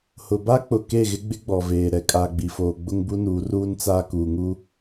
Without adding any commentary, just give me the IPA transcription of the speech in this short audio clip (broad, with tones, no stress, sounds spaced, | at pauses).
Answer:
h ʊ˨ b a˦ k͡p ʊ˨ k e˦˨ ɣ ɪ˦ ɡ͡b ɪ˦ ɡ͡b ɔ˨ v eː˨ ɾ ɛ˨ kʼ aː˨ ɡ͡b i˨ f oː˨ ɡ͡b ʊ˦ ŋ b u˦ n uː˨˦ r uː˦ n t͡s aː˦ k uː˨ ŋ u˦